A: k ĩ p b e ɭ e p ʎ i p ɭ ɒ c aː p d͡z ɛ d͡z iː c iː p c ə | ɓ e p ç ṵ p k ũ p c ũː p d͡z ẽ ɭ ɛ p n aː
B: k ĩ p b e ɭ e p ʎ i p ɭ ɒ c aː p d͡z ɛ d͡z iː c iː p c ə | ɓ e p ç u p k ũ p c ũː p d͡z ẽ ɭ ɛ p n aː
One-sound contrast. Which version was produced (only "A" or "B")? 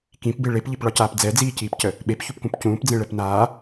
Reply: B